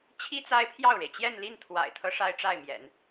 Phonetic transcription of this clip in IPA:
t͡ɕʰ i˥ t͡s a˥ ɪ̯ pʰ j ɑ˥˩ ʊ̯ ɻ e˩ ɪ̯ t͡ɕ j ɛ˥˧ n l i˥˩ n t̪ʰ w a̰˨˩ ɪ̯ t̪ʰ ɤ˧˥ ʂ a˥ ɪ̯ ʈ͡ʂ a˥˩ ɪ̯ m j ɛ̰˨˩˦ n

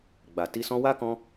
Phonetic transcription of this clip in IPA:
ɡ͡b a˨ t i˧ s ɔ̃˧ w a˦ k ɔ̃˧

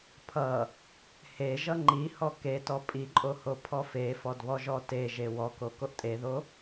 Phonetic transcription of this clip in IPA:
pʰ ʌ | h e ʒ ʌ ŋ͡ǃ i h ɔ k e t ɔ pʼ i ǃʼ o h o pʰ ɔ f e f ɔ d β ɔ ʒ ɔ t e ʒ e w ɔ k o k o ʔ tʼ e ð o

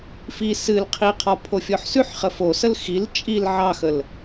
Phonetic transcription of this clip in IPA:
f i s ɨ l qʰ i qʰ ɔ pʰ o fʲ ɔ ħ s ʉ ħ χ ə f o s ə l x i l t͡ʃʼ i l ʕ ɑ x ə l

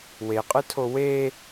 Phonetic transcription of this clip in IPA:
w e qʼ ɯ tʰ o w e

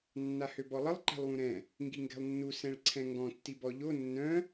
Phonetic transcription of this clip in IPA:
nː a h ø b ɔ lˠ ə lˠ ǃ ɛ̤ lˠ w ũ ɾ ɛ̃ | ŋ ɡ i ŋ ɡ ɛ̤ lˠ nː u s ɛ̃ ɭ ǀʰ ɛ̃ ŋ ɡ ɔ̃ tː i b ɔ ʎ o nː œ̃

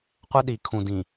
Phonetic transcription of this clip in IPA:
qʷ ə˦ ɗ i˨ kʰ ũ˨ d ĩ˨

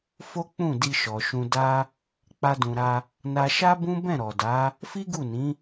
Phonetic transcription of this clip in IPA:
f o˦ k͡p ũ˦˨ d i˧ ʃ ɔ˨ ʃ ũ˧ d a˦ | k͡p a˦ d ũ˧ ɾ a˦ | n a˧ ʃ a˦ b ũ˦ b ɛ̃˦˨ ɾ ɔ˨ d a˨˦ | f i˦ ɡ u˦˨ n ĩ˨˦

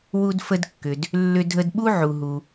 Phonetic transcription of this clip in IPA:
w u˧ d f ə˧ d kː ʏ˩ d | lː ʏ˧ dʱ ə˧ d ɓ u˥ ʕ u˩ ɦ u˩

